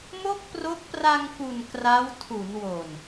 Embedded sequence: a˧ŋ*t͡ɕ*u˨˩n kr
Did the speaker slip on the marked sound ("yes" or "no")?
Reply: yes